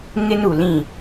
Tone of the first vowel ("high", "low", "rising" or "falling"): high